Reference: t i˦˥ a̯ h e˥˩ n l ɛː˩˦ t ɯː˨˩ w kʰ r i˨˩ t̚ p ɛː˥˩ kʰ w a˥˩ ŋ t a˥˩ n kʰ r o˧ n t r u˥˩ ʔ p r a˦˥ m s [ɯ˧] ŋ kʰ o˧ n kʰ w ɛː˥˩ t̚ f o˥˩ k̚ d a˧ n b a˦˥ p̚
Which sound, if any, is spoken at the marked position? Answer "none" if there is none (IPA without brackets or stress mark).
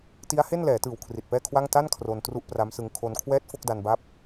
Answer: ɯ˧